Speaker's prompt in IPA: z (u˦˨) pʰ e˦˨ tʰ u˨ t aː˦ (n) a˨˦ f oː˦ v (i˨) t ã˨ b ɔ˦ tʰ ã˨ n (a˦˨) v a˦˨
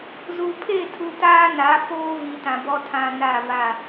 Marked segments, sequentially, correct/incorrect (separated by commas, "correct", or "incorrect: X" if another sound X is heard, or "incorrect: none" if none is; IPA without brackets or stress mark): incorrect: u˨, correct, correct, correct